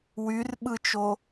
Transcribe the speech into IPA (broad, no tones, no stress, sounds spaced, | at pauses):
w y r ɓ ɯ t͡ʃ o